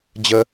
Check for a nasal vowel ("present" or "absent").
absent